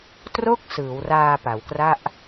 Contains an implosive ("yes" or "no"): no